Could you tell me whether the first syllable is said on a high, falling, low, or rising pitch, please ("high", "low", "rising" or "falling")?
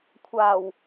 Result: low